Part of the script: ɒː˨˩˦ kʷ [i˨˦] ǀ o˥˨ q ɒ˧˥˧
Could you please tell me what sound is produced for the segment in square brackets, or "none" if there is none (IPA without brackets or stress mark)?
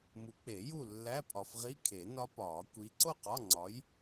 i˨˦